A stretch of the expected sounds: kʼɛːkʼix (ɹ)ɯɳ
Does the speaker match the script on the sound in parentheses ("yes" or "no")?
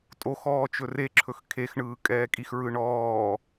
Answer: yes